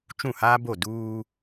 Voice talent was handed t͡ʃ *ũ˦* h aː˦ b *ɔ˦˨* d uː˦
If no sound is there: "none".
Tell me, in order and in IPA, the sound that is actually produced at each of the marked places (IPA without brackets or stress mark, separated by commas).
ũ˦˨, o˦˨